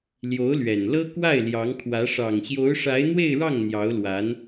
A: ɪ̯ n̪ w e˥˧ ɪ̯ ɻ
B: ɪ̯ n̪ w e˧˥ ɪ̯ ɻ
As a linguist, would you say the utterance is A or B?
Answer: A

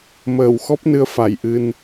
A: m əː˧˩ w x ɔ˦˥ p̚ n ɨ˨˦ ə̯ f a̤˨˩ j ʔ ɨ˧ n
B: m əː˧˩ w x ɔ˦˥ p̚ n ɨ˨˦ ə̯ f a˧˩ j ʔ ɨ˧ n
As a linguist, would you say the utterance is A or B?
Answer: B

